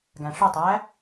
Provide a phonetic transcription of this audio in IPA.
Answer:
ɡ æ̃ ʂ ɵ tˤ æ

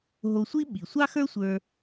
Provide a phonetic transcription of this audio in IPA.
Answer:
ɦ o˧ sʷ i˥ ɓ i˩ sʷ ɑ˥ x ə˞˥ sʷ ə˞˧

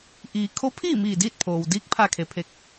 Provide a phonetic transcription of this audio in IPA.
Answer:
ʔ iː˩ kʰ o˧˥ pʰ iː˥˨ m iː˧˩ d iː˥˨ t̚ pʰ oː˩ w d iː˧˥ k̚ pʰ aː˧ kʰ e˩ pʰ e˧ k̚

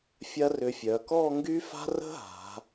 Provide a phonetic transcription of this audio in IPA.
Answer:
fʲ ɐ˥ r ʏ˧ fʲ œ˩˧ k ɔ˥˧ ŋ ɡ y˥ f a̤˥ r ə̤˥ ɦ a̤˩˧

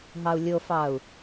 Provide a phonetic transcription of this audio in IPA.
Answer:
ɦ ɑ u̯ lʲ o f ɑ u̯

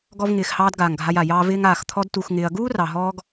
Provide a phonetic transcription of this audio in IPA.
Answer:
ɡ ɔ˦ v ŋ ɪː˧ x h ɑː˦ d ɡ aː˨ ŋ ɡʱ a˧ j a˨ j ɑː˦ v ɪː˦ ŋ aː˨ x t̪ʰ ɔ˦ d t u˧ x ŋ ɪː˧ ɐ̯ ɡ uː˦ r ɑ˨ ɦ ɔː˧ ɡ

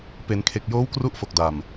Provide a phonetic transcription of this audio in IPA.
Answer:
p e˩˦ n kʰ e˨˩ k̚ j oː˦˥ w k r u˥˩ ʔ f o˨˩ k̚ d a˨˩ m

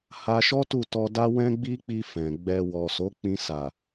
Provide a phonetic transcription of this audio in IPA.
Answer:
h a˧ ʃ ɔ˦ t u˦˨ t ɔ˧ d a˦ w ɛ̃˦ ɡ͡b i˦ k͡p i˧ f ɛ̃˨ ɡ͡b ɛ˧ w ɔ˨ s o˨˦ k͡p ĩ˧ s a˨

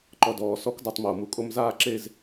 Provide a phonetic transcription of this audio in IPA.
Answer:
ǃ ɔ˧ d ɔː˩˧ s ɔ˦˥ k d a˧ tˤ m oː˩ m u˩˧ kʼ o˧ m z aː˥˧ ǁ e˥˧ z

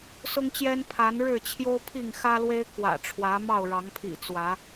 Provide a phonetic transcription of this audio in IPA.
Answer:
s ʊ˦ ŋ t͡ɕ j ɛ˦ n pʰ a˨˦ n ɻ ɻ̩˥˨ t͡ɕʰ j o˦ ʊ̯ pʰ i˥˨ ŋ x ä˦ l w e˦ ɪ̯ k w ä̰˨˩ ʈ͡ʂʰ w ä˨˦ m ɑ˥˨ ʊ̯ ɻ ɑ˨˦ ŋ pʰ ḭ˨˩ t͡s w ä˨˦

